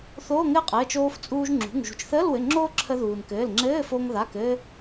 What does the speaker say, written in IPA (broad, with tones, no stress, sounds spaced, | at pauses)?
θ oː˧˥˧ ŋ ɘː˥ qʼ ɘː˩˧˩ t͡ʃ oː˧ f t͡sʼ uː˧ ʒ ŋ͡ǁ ṳ˩˧˩ ŋ ʒ ṳ˩ t͡ʃ θ əː˧˥˧ l w ɘ˩˧˩ ŋ͡ǁ oː˥ ǁʰ ə˧ ð uː˩ n k ɘː˩˧˩ l ŋ͡ǁ ɘː˧˥˧ f o˧ ŋ ð a˩˧˩ k ɘː˧